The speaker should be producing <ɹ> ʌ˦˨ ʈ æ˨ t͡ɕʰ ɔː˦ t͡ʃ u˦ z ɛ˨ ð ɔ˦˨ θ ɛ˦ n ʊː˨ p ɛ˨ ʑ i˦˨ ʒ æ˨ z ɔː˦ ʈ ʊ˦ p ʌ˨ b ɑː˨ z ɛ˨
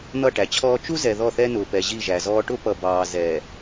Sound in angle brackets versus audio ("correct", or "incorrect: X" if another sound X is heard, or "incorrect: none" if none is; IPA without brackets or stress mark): incorrect: n̪